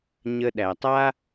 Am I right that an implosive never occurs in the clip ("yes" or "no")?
no